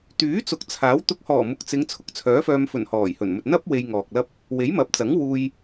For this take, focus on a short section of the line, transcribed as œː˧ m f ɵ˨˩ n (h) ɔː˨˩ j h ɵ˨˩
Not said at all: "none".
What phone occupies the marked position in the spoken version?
h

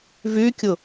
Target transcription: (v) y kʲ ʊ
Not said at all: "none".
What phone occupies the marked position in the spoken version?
v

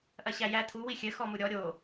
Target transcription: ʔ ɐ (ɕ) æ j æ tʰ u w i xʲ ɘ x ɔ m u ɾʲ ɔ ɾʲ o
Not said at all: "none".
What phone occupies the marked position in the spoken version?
ɕ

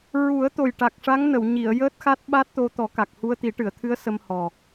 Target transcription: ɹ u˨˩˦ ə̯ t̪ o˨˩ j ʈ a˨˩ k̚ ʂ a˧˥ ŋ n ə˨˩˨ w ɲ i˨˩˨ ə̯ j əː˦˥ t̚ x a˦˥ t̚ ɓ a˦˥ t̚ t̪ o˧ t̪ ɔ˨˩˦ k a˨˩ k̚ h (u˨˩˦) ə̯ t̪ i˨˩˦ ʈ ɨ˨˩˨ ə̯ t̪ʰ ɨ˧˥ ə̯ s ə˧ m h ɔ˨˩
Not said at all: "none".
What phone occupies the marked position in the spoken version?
u˧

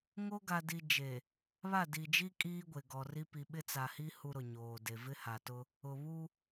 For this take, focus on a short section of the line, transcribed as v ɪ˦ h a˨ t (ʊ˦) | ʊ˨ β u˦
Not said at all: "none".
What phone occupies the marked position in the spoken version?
ʊ˦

